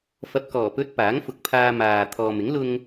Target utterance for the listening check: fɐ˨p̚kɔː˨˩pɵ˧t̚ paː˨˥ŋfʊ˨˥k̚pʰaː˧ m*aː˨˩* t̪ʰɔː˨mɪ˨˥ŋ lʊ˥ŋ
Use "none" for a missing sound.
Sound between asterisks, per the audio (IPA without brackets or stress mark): aː˨